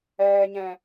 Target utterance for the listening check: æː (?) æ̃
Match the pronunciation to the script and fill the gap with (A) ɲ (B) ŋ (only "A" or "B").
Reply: A